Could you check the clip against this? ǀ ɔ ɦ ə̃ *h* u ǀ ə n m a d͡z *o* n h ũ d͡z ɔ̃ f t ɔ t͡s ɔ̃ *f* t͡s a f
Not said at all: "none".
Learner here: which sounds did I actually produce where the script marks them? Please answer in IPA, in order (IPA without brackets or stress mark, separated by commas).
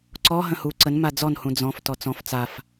h, ɔ, f